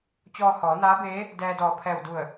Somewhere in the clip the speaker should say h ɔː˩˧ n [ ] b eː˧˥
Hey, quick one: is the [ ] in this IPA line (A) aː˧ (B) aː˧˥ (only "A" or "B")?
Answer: B